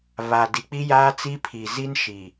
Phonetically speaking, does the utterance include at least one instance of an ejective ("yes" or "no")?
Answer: no